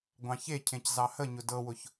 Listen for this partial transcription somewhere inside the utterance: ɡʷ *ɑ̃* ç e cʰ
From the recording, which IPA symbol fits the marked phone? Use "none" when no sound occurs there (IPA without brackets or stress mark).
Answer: ɑ̃